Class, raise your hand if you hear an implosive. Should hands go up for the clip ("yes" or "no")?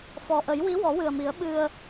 yes